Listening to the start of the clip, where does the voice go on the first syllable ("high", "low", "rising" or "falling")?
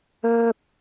high